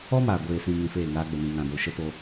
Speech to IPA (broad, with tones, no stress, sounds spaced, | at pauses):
ɔ˦ m aː˨ ɡʷ eː˨ s ĩ˨ ŋ ĩ˧ f eː˦˨ ŋ aː˧ ɡ͡b ə˨ n ĩ˨ ŋ ã˨ d o˨ ʃ ə˦ t o˧